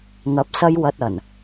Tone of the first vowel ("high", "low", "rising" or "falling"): rising